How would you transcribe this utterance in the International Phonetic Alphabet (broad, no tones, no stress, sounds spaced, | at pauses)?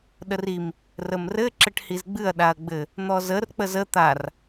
ɗ ə r i m | r ə m r ɘ ǁ ɘ ʈ h i z ɡ͡b ɨ ɐ̯ ɗ a ɐ̯ ɡ͡b ɘ | n̪ ɔ z ə r k͡p ə z ə t̪ a r